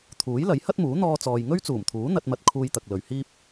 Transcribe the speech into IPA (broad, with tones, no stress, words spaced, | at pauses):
t̪ʰuː˨˥jlɐ˨˥j hɐ˥t̚muː˨˥ n̪ɔː˧t͡sɔː˨j ŋɵ˥ɥt͡suː˨˩mt̪ʰuː˨˥ n̪ɐ˧t̚mɐ˧t̚ kʰuː˧jt̪ɐ˨k̚lɵ˨ɥ hiː˧p̚